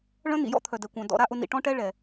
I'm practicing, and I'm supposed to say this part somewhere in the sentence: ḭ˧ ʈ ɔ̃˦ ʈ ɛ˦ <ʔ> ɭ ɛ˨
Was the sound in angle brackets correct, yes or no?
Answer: no